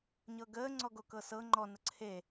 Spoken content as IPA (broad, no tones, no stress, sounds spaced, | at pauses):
ɲ ɤ ɡ əː ŋ͡ǀ ɔ ɡ o k ɤ s ɤ ŋ͡ǃ ɔ n ə ǀʰ e